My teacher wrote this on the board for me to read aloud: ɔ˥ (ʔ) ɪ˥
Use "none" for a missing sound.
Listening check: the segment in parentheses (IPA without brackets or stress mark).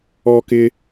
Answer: k